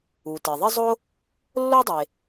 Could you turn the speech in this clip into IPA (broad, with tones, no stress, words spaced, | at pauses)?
u˩te˩ðˤɪ˥zˤo˥ | lːo˥dˤe˩